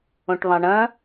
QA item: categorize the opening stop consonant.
plain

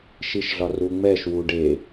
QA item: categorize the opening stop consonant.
plain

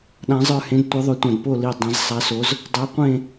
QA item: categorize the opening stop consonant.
implosive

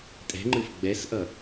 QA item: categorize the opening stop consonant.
ejective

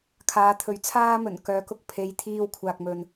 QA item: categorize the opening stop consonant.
aspirated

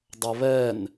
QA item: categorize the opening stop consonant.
plain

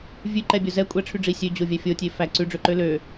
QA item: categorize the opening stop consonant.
click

